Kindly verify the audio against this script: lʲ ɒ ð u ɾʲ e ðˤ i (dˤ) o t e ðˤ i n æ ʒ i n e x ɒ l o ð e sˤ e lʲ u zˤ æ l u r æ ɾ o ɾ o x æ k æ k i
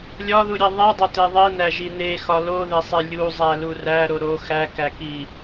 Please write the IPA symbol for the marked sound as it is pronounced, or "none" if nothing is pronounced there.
dˤ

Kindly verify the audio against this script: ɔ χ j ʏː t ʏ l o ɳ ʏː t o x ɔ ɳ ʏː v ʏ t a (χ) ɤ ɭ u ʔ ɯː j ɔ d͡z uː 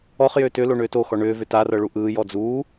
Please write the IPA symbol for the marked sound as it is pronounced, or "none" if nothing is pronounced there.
r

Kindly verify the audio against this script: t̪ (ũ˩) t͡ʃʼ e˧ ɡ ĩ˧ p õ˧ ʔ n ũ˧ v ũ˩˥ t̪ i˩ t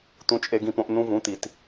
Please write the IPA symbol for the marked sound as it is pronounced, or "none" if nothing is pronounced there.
ũ˧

